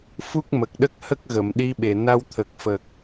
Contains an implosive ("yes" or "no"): yes